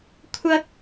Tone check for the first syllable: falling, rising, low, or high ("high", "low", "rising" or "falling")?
high